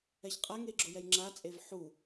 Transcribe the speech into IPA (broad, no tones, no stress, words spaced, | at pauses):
ɛçqʼaŋe ɡ͡ǁʊjɛjŋ͡ǁat͡sʼev ħu